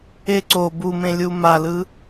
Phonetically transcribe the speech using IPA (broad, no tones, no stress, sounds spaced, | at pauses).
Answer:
e ǀ o b u m ẽ lʲ u m a l ɯ